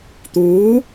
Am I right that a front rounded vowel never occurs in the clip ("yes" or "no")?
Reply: yes